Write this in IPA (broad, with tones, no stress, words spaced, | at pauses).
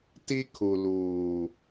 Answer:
ti˦kʰu˨ luː˨